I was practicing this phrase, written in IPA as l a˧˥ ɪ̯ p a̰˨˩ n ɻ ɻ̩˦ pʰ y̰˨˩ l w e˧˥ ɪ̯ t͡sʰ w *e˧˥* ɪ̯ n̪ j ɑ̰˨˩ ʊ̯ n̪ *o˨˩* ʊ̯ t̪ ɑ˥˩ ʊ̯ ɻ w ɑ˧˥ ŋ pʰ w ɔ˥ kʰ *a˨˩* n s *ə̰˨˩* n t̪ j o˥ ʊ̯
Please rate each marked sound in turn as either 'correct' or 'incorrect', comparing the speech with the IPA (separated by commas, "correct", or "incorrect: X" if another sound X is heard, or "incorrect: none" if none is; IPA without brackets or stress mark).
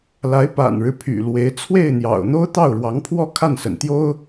incorrect: e˥˩, incorrect: o˥, incorrect: a˥˩, correct